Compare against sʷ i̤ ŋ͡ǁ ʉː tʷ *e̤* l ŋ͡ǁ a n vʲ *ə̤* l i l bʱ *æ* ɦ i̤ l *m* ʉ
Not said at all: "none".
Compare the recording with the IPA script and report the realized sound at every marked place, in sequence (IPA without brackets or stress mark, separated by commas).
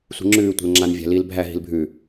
e̤, æ̤, æ, bʱ